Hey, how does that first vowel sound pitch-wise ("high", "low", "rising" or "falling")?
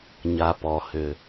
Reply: low